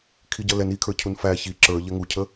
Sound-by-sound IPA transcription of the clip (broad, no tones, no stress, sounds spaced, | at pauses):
kʰ i ɟ ʌ l ɛ n i kʰ ə˞ cʰ u n f æ ç i ǁ ə˞ ʎ ɛ ŋ u cʰ ə